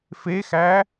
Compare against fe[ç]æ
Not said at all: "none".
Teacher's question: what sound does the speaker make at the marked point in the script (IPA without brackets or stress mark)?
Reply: x